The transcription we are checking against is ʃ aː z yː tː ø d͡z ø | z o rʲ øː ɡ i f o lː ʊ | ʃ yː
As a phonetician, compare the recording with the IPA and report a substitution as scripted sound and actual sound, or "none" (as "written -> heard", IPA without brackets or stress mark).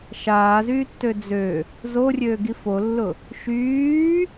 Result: none